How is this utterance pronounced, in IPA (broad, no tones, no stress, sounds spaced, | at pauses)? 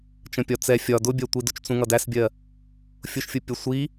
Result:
t͡ʃ ə̃ pʲ ɒ t͡s ɛ fʲ ɒ d ʊ bʲ ɜ tʷ i d ʊ t͡ʃ t͡s ũ ŋ ʌ d æ s bʲ ɜ | fʲ ʊ ʃ fʲ ʊ pʲ ʌ sʷ i